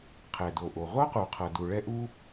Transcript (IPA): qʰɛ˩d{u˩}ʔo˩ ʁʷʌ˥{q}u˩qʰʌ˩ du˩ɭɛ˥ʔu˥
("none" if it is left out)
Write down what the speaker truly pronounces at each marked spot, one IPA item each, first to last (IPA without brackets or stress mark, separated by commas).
o˩, q